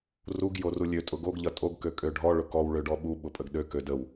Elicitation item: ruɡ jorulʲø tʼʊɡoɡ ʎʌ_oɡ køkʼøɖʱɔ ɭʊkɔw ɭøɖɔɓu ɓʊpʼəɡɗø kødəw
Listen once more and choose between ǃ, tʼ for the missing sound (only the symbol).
tʼ